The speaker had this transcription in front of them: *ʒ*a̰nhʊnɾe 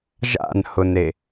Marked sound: correct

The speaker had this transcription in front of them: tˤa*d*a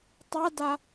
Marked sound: correct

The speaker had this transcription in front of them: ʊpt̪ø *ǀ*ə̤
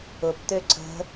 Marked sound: correct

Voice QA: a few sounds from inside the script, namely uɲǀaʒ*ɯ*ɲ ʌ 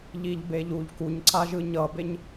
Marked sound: correct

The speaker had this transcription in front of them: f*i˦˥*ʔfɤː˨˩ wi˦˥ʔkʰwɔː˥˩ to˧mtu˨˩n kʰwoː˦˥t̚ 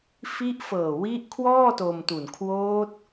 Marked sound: correct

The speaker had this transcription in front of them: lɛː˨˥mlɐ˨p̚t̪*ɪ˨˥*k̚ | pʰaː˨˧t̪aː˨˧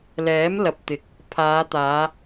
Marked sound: correct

